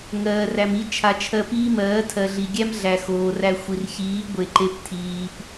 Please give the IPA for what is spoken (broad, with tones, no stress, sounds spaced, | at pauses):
ŋ ɜː˨ r æ˨ m i˧ t͡ʃʰ a˨ t͡ʃʰ ɜ˧ p iː˦ m ɜː˨˦ tʰ ɜ˨ ɮ i˨ ɡʲ æ˦ m ɮ æ˨ x oː˨ r æ˧ xʷ i˨ r ç iː˨˦ ɡʷ e˨ ǃ e˧ p tʰ iː˨ p